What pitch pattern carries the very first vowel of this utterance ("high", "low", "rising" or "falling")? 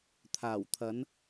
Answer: low